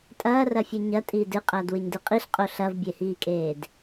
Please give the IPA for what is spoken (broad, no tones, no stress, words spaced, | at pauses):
tʼɐːrɐfʲɨ ɲɐtʼiːd ɨqʼɐːdwɨɲdɨ qʼiɬqʼo ɬɐvbʲehiːkʼeːd